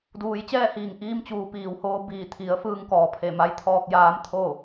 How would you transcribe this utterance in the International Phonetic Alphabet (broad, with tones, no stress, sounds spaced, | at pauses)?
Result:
d uː˩˧ j t͡ɕ ɛː˥˨ h iː˧˩ ŋ ʔ iː˧ m t͡ɕ uː˩ p iː˩ w h oː˧ b iː˧˩ t̪ʰ i˩˧ ə̯ f ɯː˧ ŋ k ɔː˩ pʰ e˧˩ m a˧˥ j t̪ʰ ɔː˧ k̚ j aː˧˥ m t̪ʰ o˥˨